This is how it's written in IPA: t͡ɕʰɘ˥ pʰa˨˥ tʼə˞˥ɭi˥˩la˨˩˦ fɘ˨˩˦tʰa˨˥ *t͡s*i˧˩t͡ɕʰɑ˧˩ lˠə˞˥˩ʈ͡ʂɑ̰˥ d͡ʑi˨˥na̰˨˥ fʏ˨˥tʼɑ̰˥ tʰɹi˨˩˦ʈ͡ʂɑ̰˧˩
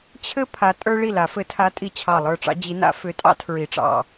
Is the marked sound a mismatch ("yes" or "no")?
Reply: yes